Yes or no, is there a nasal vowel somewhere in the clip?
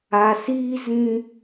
yes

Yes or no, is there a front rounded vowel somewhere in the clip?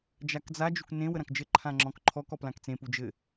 no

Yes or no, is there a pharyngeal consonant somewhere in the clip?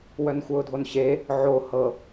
yes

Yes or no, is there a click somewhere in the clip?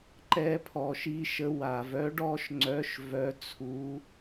yes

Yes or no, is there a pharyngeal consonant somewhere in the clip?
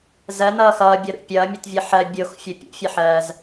yes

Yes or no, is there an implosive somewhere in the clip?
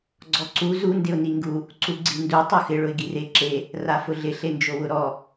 no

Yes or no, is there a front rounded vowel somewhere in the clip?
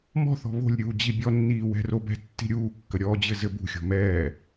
no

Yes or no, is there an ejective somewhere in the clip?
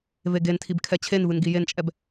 yes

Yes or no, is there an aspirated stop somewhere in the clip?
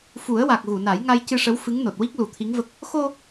yes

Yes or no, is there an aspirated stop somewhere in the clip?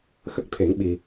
yes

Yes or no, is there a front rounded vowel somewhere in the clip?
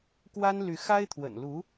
yes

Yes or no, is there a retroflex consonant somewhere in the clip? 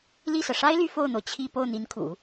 yes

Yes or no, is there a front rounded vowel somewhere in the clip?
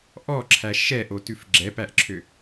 yes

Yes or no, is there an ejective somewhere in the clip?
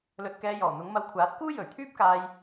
no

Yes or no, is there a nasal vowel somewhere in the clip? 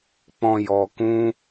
yes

